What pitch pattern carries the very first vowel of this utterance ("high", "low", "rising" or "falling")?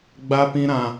high